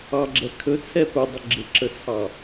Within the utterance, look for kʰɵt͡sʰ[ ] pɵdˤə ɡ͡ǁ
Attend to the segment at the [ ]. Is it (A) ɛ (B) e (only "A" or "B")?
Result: A